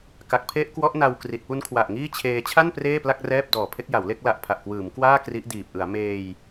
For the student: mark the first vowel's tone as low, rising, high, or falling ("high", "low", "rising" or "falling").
low